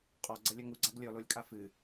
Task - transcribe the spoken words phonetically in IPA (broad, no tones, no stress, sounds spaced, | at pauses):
qʼ ɔ ɡ͡ǀ ɐ lʲ ɐ ŋ u ɡ͡ǀ a ɡ lʲ ɔ l o lʲ kʼ a f ɨ